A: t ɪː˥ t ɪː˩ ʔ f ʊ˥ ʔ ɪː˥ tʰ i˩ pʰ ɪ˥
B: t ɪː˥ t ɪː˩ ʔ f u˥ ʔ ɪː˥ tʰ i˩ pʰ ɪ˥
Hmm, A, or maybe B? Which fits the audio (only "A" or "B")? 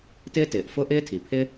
A